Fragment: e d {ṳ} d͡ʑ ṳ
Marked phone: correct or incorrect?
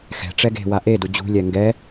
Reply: incorrect: u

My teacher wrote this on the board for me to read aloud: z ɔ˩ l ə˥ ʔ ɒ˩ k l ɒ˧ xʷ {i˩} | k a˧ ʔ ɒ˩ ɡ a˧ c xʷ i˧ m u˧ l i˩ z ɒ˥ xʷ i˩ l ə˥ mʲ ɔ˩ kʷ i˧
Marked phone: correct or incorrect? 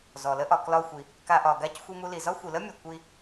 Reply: correct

